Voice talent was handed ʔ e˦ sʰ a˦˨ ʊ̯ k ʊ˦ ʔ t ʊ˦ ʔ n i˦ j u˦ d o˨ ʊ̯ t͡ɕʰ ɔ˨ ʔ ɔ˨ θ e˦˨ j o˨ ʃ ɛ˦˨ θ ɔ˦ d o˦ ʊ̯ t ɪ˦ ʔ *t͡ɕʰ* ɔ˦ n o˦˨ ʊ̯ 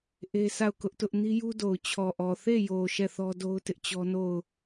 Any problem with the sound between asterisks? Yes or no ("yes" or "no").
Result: yes